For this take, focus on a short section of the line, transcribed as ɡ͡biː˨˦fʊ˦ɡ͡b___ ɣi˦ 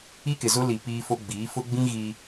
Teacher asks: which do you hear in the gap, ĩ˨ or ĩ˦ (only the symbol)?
ĩ˦